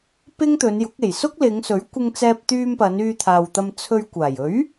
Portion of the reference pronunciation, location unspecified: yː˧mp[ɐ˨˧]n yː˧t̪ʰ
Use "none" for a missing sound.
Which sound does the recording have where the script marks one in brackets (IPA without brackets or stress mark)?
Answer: ɐ˨˧